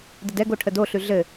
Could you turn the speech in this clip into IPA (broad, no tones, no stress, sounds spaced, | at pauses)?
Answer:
d ə d ɛ ɡ o ʈʰ ə d o ɬ ʉ ɮ ɘ